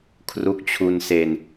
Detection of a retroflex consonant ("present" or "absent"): absent